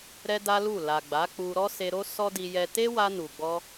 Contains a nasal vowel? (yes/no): no